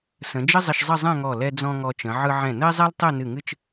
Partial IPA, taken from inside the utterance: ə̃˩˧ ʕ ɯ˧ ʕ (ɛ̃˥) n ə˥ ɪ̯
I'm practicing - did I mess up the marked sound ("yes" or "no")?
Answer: yes